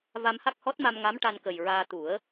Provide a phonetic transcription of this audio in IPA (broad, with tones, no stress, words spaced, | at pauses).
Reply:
va˧mha˦˥k̚hɔ˦˥t̚ma˧m ŋa˧˥mʈa˧nkə˨˩jɹaː˧ t̪u˨˩˦ə̯